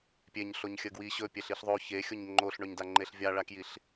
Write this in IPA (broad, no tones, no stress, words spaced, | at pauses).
pʲeɲɬoɲ xʲəɡwi ɕɵpʲeɬ iɬðˤo çexʲoɲ ŋ͡ǃoɬɳɵɲda ŋ͡ǃeɬvʲaɭakjiɬ